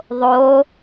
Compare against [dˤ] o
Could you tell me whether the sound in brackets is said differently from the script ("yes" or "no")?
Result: yes